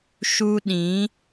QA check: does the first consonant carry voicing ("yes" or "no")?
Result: no